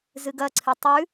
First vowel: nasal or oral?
oral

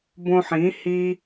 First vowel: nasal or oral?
nasal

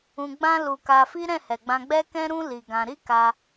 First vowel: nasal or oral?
nasal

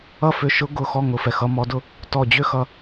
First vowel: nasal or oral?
oral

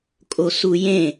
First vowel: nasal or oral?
oral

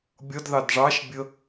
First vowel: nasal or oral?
oral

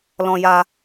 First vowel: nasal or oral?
nasal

